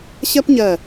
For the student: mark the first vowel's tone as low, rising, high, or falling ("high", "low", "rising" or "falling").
high